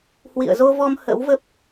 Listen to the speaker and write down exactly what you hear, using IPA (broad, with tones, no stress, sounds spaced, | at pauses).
h w ḭ˧˨ ə̯ z o˧ v ɔ˧ m h ə̰˧˥ w v ə˦˥ p̚